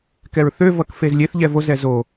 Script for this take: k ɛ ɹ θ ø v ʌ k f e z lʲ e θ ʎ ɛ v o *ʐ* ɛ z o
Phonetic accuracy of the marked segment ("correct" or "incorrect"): incorrect